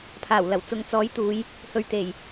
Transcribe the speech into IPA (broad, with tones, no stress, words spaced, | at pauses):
pʰaː˨˩w lɐ˨˩w t͡sʊ˨ŋt͡sɔː˨˥j t̪uː˨˧j | hɵ˧ɥt̪e˨˩j